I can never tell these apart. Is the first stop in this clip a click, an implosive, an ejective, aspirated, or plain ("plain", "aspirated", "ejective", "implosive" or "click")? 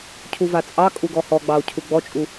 aspirated